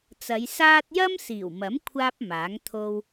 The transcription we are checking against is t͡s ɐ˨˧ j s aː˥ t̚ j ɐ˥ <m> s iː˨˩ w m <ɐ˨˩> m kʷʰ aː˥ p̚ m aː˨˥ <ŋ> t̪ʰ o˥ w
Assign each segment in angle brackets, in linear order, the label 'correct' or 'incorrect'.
correct, incorrect, correct

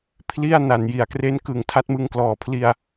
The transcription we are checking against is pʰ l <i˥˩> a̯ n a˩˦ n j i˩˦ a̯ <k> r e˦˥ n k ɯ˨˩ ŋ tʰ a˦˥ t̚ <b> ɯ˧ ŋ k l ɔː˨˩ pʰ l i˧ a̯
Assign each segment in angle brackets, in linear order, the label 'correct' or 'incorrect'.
correct, correct, incorrect

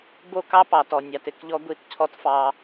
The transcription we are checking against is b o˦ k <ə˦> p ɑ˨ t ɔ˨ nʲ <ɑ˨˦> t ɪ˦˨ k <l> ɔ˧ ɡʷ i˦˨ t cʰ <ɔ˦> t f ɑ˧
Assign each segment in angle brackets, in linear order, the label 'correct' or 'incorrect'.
incorrect, incorrect, incorrect, correct

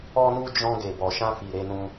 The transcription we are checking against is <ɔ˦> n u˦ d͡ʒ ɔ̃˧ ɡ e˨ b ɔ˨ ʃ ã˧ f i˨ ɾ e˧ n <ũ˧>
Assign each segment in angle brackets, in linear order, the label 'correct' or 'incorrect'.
correct, correct

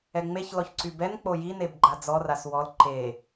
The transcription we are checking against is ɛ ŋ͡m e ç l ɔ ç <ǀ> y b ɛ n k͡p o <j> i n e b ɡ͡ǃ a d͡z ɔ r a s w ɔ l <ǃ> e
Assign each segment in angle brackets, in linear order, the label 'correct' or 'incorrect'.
correct, correct, correct

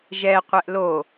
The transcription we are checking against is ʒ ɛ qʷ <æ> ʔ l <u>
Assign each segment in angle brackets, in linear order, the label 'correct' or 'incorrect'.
incorrect, incorrect

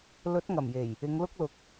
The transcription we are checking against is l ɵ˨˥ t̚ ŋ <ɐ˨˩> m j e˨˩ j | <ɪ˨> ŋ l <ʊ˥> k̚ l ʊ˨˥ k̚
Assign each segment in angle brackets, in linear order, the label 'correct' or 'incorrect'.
correct, incorrect, correct

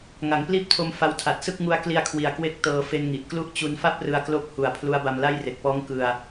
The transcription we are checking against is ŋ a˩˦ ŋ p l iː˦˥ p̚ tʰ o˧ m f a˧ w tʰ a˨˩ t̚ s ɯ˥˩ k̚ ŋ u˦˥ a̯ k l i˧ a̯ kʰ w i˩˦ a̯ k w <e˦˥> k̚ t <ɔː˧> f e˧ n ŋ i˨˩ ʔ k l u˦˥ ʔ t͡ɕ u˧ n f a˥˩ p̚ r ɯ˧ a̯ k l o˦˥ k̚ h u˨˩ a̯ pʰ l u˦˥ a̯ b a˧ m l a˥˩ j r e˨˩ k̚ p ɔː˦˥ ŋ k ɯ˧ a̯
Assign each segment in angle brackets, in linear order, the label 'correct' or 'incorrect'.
correct, incorrect

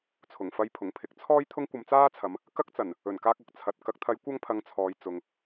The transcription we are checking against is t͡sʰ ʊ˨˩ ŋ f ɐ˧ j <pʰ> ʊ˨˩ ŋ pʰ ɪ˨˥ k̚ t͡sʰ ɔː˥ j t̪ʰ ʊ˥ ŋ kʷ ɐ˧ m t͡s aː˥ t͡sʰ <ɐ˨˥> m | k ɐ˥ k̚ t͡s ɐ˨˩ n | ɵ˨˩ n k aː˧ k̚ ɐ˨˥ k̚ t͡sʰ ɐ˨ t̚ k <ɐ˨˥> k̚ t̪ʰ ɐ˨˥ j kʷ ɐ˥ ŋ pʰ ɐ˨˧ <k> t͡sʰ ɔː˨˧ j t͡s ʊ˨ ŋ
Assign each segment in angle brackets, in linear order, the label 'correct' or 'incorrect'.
correct, incorrect, correct, incorrect

